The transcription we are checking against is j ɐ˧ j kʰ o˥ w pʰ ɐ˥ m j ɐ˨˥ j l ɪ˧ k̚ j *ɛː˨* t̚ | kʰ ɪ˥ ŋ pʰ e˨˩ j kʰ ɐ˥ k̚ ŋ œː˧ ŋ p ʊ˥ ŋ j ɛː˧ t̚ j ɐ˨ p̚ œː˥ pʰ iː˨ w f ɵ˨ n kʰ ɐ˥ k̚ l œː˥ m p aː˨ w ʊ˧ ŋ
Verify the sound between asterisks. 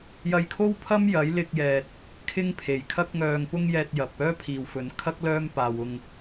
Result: correct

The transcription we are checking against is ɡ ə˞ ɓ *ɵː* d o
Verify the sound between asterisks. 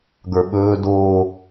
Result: correct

